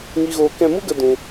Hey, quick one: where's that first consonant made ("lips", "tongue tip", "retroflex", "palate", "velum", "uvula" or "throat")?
velum